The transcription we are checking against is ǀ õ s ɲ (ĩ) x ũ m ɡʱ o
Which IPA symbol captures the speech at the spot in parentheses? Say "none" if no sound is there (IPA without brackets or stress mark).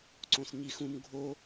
i